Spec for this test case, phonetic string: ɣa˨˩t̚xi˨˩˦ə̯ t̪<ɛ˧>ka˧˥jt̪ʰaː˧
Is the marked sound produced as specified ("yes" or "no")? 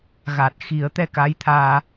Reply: yes